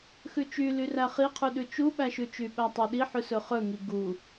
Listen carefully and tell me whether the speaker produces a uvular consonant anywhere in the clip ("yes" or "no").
yes